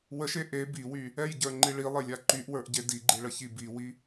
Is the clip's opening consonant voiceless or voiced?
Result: voiced